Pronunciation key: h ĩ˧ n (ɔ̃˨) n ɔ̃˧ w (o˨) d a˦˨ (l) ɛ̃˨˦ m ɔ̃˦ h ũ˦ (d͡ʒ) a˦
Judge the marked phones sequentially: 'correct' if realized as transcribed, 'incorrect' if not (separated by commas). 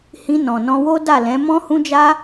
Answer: correct, incorrect, correct, correct